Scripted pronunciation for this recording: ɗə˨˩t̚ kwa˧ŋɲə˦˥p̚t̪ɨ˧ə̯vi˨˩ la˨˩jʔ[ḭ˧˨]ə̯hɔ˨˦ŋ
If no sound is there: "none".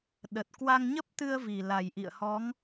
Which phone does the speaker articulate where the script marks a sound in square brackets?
ḭ˧˨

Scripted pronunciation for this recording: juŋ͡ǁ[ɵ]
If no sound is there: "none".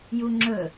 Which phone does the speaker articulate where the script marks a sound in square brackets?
ɵ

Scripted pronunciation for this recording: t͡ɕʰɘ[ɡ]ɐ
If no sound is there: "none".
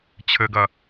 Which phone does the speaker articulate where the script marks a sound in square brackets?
ɡ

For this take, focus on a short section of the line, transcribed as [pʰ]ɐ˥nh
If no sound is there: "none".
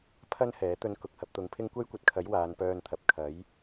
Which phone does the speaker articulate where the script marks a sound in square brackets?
pʰ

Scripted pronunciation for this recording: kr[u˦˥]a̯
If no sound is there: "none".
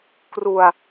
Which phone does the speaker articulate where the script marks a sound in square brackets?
u˧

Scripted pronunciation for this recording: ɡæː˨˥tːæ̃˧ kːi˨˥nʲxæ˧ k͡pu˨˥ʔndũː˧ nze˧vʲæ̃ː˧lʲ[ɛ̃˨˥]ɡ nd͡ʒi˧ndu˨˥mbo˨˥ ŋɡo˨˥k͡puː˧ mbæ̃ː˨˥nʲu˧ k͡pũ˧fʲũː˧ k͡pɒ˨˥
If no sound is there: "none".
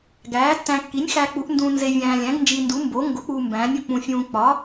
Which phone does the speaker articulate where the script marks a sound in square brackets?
æ̃˨˥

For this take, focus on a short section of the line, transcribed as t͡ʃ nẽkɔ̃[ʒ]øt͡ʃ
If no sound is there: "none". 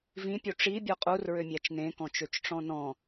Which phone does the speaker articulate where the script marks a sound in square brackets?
t͡ʃ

